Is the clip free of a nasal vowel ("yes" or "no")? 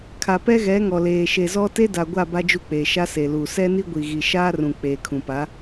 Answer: no